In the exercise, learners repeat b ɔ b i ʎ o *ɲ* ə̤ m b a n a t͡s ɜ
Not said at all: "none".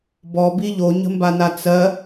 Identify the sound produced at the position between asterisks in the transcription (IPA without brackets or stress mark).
ɲ